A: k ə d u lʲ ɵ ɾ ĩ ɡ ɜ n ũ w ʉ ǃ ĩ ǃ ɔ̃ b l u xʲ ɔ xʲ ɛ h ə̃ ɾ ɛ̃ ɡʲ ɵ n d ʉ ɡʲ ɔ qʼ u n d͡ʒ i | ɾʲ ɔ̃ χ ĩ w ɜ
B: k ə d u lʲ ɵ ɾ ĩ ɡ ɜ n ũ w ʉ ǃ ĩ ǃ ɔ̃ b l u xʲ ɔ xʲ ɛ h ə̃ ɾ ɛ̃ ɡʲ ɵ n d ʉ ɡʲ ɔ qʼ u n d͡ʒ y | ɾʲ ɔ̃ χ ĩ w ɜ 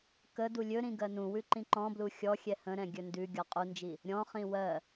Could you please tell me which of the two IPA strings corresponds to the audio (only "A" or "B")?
A